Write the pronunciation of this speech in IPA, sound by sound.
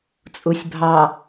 t͡sʼ u sʲ bʱ ɑ

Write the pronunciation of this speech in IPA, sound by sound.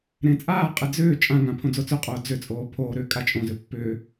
ɾ ẽ t͡sʼ aː qʼ e d͡z ʏː t͡ʃʼ ã ŋ ã pʰ õ d͡z o t͡s ʏ qʼ oː d͡z ʏ t͡sʼ oː pʰ oː ɾ ʏː kʼ a t͡ʃʼ õ z ʏ pː ʏː

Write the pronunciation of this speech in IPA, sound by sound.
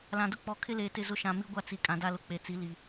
l ã˨ d ʊ˦ k͡p ɔ˨˦ kʰ ɪ˦ l eː˨ t ɪ˦˨ z ʊ˦ ʃ ã˨ m i˦ ɡʷ a˦ t͡s i˨ kʼ ã˨ d a˦ l ʊ˨ k͡p e˨ t͡s i˨˦ l i˨

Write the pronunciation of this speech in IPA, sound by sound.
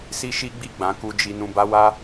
s i˦ ʃ i˦ ɡ͡b i˦˨ ɡ͡b ã˨˦ k u˧ d͡ʒ i˧ n ũ˧ b a˦ w a˦

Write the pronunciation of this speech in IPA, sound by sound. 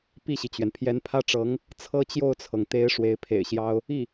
p i˥˩ ɕ i˩ t͡ɕ ɥ ɛ˩ n pʰ j ɛ˧˥ n pʰ ä˥ ʈ͡ʂ ɤ˧˥ ŋ | t͡sʰ ɤ˥ t͡ɕ j o˥˩ ʊ̯ t͡sʰ ɤ˩ ŋ t̪ e˧˥ ɪ̯ ʂ w e˧˥ ɪ̯ pʰ ḛ˨˩ ɪ̯ ɕ j ɑ˥ ʊ̯ | i˥˩

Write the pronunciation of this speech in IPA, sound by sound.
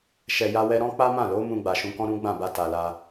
ʃ ɛ˨ j a˧ w ɛ˧ ɾ ɔ̃˦ k͡p a˦ m ã˦˨ l o˨˦ m ũ˧ ɡ͡b a˨ ʃ ũ˨˦ k ɔ̃˦ ɾ ũ˦ ɡ͡b ã˦˨ b a˧ t a˨ l a˧

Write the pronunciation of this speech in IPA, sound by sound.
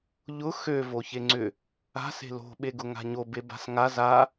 ʎ ʊ x ø v o ç e ŋ͡ǀ ʏ | a̤ s e̤ l o̤ ɓ e ɡ ʊ ŋ a̤ ɲ o b e b a̤ s ŋ a z a

